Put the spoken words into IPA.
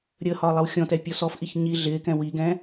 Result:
ɾʲ ə h ɒ lˠ ɪ w xʲ ɔ̃ t ɛ pʲ ɔ s ɔ f ʔ i ç ɲ i ɮ ɪː k ɛ̃ w i ɡ ɛ̃

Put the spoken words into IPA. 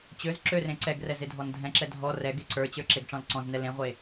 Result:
t͡ɕ ø z ǁ ø r ẽ ǀ ɛ ɡ r ɛ z e dʱ ɔ n dʱ ɛ̃ ǁ ɛ dʱ ɔ r ɛ ɡ e ǀ ə˞ t͡ɕ ə˞ ǁ e ɡ ʈ͡ʂ ɔ̃ l ǀ ɔ̃ z n ɛ l ẽ ʁʷ e

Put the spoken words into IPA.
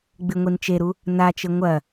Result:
ɡ͡b ɨ ŋʷ i n t͡ʃ e ɾ u | n a t͡ʃ ɘ ŋʷ ɐ

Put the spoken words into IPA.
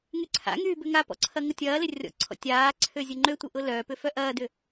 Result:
ŋ y ǀʰ a̰ ŋ yː b ø ŋ a p ɔ̰ ǀʰ ɐ ŋ ʊ tʲ ɐː l ɪ rʲ ɔ̰ ǀʰ ɔ̰ tʲ aː ǀʰ ø zʲ ʊ ŋ͡ǃ ø tʷ ɪ ʔ ʊ l œː p ʏ f œ ʔ ɐː d ʏ

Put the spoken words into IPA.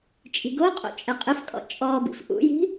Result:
t͡ʃʼ i̤ ɡ o qʼ o̰ t͡ʃʼ ɛ qʼ ɘ f kʼ ɔ̰ t͡ʃʼ ɔ b ḭ f ʔ ṵ j i̤

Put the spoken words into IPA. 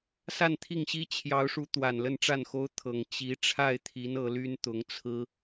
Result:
s a˥˧ n t̪ʰ i˥˩ ŋ ɕ i˥ t͡ɕʰ j ɑ˧˥ ʊ̯ ʂ u˧˥ t̪ w a˨˩ n l ə˥˧ n ʈ͡ʂ a˥˩ n x o˥ ʊ̯ t̪ʰ ɤ˨˩ ŋ t͡ɕ i˧˥ ʈ͡ʂʰ a˥˩ ɪ̯ t̪ʰ i˧˥ n ɤ˧˥ l y˥ n t̪ ʊ˧˥ ŋ t͡sʰ ɹ̩˥

